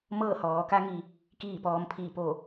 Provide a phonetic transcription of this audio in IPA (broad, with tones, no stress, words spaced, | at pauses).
mɤː˥˨hɔː˩˧ ka˧˥ŋi˩˧ | kiː˥˨pɔː˧m pʰiː˧˩po˧˩